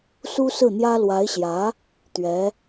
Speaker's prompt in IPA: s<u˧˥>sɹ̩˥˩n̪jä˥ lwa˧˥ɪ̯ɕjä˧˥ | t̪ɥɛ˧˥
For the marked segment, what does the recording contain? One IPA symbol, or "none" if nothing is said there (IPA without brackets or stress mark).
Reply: u˥